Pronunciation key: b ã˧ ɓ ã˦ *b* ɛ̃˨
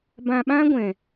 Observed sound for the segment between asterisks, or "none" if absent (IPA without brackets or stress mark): ɡʷ